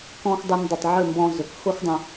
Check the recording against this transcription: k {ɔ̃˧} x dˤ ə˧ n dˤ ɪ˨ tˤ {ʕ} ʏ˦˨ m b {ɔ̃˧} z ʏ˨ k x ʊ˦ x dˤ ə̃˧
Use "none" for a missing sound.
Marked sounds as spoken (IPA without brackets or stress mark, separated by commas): ɔ̃˧, ʕ, ɔ̃˧